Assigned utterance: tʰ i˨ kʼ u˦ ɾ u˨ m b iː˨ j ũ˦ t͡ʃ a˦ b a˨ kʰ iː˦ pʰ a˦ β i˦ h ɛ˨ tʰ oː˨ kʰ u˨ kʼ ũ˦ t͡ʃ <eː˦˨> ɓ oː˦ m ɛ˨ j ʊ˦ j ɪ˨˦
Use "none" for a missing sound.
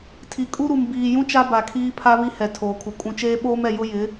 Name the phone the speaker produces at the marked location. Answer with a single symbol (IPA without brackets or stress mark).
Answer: eː˦